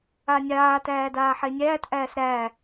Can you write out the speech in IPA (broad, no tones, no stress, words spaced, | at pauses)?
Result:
anʲaː tæːdaːħenʲæːt ʔæːsɾæ